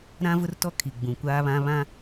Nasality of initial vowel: nasal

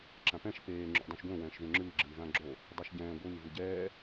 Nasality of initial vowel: nasal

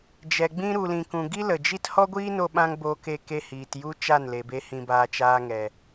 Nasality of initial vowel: oral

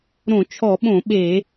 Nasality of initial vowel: nasal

